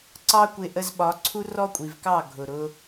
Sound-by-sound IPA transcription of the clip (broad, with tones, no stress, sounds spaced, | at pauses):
ǀ ɑ˦ kʷ ɪ˧ ʔ ə˧ z ɓ ɒ˨˦ ǀʰ u˦ r ɔ˦ kʷʼ i˨ v k ɑ˦˨ ɡʱ ʊ˨ ɾ ʊ˧